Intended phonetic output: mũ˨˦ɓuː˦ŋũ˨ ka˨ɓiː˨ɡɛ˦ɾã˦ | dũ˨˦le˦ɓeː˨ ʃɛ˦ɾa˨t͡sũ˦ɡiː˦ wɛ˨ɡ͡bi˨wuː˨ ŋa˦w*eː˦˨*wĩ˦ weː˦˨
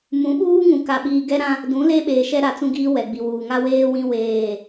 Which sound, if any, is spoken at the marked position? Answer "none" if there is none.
eː˦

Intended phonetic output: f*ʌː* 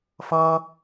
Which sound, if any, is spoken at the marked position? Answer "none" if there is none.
ʌː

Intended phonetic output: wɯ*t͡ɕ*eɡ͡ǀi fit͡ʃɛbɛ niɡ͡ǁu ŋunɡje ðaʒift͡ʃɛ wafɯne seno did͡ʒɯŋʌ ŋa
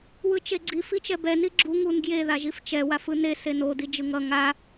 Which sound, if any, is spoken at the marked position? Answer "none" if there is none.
t͡ʃ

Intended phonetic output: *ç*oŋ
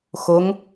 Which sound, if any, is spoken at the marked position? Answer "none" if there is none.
x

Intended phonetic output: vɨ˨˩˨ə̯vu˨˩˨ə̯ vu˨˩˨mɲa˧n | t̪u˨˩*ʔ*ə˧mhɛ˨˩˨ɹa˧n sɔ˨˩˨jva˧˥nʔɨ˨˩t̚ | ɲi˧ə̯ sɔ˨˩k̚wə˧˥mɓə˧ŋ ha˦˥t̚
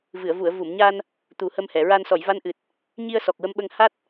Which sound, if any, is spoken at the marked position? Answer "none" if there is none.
h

